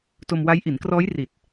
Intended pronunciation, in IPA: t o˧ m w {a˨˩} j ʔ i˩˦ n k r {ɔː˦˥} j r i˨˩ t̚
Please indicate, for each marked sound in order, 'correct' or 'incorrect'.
incorrect: a˦˥, correct

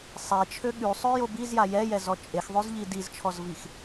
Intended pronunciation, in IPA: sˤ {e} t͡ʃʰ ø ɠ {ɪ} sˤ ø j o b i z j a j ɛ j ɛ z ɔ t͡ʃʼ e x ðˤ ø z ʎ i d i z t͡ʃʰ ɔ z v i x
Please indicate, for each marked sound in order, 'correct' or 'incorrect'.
correct, incorrect: y

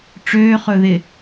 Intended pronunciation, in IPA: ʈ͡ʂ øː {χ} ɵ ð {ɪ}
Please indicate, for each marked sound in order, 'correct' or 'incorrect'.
correct, correct

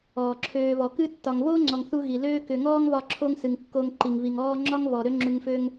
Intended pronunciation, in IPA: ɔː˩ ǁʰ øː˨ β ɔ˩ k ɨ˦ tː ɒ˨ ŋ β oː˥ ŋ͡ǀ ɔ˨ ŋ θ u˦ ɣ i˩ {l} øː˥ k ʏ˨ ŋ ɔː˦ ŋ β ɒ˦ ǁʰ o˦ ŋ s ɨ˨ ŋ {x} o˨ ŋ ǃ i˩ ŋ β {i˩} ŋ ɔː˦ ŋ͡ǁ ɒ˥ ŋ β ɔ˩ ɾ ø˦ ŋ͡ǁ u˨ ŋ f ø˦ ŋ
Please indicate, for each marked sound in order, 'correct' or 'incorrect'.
correct, incorrect: kː, correct

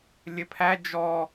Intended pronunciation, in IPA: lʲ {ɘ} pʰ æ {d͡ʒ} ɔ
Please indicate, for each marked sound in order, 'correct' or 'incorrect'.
correct, correct

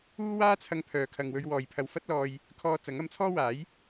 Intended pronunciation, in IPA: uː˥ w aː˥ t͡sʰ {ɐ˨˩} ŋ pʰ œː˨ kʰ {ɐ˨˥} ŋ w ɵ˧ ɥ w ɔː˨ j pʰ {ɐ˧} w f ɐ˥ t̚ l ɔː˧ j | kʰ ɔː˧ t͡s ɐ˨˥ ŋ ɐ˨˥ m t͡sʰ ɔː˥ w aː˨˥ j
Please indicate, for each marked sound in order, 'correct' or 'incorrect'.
incorrect: ɐ˧, incorrect: ɐ˨, correct

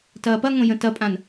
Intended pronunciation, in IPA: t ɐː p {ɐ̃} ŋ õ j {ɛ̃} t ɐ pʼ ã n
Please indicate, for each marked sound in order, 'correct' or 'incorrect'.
incorrect: ɐ, incorrect: ə̃

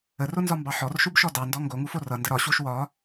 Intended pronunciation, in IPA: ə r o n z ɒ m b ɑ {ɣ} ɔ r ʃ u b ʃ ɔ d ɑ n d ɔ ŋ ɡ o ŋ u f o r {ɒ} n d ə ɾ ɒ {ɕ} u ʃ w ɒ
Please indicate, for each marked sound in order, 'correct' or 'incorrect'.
incorrect: ħ, incorrect: ʌ, correct

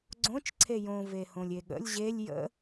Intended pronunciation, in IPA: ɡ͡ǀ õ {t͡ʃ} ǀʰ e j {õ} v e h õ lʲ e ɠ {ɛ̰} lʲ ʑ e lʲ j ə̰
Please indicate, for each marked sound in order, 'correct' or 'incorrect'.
correct, correct, incorrect: ə̰

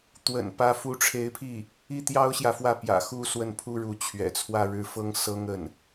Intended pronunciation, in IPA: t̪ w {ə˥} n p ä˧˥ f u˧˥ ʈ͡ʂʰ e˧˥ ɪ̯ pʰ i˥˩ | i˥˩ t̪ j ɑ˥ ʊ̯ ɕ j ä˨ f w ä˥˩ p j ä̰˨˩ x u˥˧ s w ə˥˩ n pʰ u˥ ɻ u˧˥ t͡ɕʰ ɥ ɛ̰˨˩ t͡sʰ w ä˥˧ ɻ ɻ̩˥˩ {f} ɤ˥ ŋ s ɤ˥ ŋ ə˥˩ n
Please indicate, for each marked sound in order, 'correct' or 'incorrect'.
incorrect: ə̰˨˩, correct

